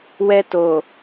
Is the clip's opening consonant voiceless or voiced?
voiced